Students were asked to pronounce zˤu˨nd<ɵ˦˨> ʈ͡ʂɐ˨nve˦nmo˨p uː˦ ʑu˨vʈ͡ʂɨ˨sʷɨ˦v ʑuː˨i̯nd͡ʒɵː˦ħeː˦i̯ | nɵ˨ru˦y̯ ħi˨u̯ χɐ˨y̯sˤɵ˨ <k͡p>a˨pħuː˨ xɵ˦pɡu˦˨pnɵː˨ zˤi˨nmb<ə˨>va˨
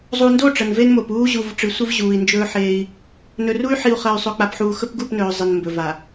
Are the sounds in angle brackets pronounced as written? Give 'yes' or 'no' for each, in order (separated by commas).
no, yes, no